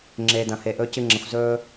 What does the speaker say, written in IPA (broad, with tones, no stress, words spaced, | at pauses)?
ŋ͡ǁeː˧dɐ̃˨he˧ ʔɵː˦cɨ˦ŋ͡ǁɐ̃˧xʷ zɵː˦